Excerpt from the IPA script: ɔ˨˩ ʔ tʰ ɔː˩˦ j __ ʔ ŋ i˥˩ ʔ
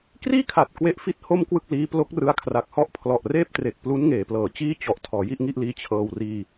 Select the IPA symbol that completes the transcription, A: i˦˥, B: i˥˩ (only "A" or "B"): B